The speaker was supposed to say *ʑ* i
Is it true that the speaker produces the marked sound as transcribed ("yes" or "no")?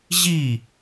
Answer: yes